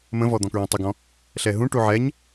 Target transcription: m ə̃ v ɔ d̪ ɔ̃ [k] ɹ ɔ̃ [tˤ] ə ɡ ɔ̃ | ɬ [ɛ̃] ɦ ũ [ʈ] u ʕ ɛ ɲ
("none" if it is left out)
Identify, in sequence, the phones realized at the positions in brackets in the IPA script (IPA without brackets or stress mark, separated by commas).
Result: k, tˤ, ɛ, ʈ